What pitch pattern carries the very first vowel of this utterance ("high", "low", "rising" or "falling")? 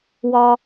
low